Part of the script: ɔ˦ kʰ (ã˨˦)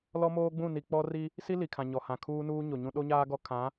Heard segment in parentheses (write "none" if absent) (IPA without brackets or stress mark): ã˨˦